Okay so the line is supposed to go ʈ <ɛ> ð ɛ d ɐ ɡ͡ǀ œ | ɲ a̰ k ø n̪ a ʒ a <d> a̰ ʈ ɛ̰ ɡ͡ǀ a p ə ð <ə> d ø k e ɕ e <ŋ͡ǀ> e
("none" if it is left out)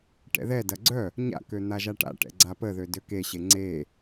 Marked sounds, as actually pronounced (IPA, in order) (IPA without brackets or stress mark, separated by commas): ɛ̰, ʈ, ø, ŋ͡ǀ